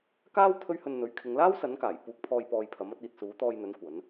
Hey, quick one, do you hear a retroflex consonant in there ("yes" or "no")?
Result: no